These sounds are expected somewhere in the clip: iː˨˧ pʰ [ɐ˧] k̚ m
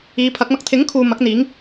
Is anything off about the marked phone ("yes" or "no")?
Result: yes